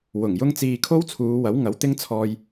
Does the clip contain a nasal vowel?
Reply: no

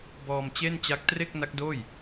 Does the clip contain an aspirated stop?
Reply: no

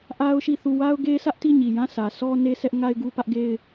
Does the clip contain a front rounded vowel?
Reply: no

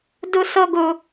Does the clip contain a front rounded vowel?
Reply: no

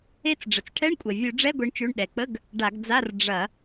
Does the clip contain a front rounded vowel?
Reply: no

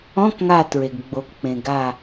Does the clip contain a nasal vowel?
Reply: yes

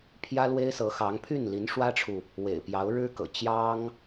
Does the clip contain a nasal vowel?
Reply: no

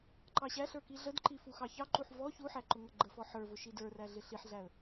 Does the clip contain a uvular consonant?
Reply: no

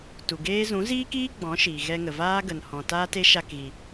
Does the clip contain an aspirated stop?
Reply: no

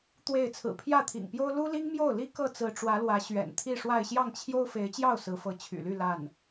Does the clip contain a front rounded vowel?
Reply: yes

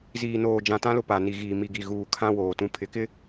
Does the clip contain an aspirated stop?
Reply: yes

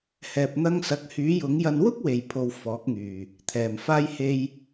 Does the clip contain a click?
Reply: no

